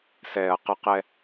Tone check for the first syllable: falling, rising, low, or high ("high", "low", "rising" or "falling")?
low